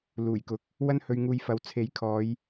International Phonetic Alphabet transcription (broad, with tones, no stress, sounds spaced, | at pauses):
l uː˨˩ j k ʊ˨ k̚ | w ɐ˥ n h ɵ˧ ɥ ŋ uː˧ j f ɐ˨˧ w t͡sʰ e˨˥ j kʰ ɔː˨˧ j